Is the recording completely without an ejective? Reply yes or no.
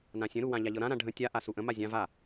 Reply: yes